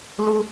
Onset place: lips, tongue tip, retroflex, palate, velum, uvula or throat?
tongue tip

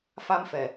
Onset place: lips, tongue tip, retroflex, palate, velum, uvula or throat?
lips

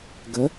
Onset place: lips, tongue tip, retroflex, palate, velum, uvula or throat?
velum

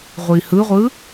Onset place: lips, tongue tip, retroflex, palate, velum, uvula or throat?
uvula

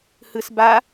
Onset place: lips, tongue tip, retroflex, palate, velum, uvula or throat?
throat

